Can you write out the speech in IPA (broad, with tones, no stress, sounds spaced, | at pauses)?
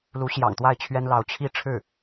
l u˧˥ ɕ j ɑ̰˨˩ ŋ t̪ w a˥˩ ɪ̯ t͡ɕʰ ɥ ɛ˥ n l ɑ˧˥ ʊ̯ t͡ɕʰ i˥˧ ʈ͡ʂʰ ɻ̩˥˩